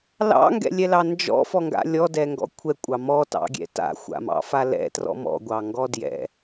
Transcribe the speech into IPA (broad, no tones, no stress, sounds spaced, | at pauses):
l ɑ̰ ŋ ɡ ɛ̰ lʲ ɛ l ɑ n d͡ʒ ɔ̰ f ɔ ŋ ɡ a̰ lʲ ɔ d ɛ ŋ ɡ ɔ̰ kʷʰ ɛ kʷʼ ɑ m ɔ t ɑ̰ ɡʲ ɛ̰ t a̰ xʷ a̰ m ɑ̰ f a l ɛ̰ t r ɔ̰ m ɔ̰ ɡʷ ɑ ŋ ɡ ɔ d j ɛ̰